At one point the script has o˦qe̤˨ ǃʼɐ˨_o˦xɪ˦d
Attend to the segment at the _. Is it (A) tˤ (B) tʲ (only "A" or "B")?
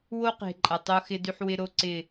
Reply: A